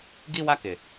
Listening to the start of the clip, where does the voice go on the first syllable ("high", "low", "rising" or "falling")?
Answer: high